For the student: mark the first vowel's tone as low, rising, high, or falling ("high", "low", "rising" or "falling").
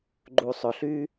low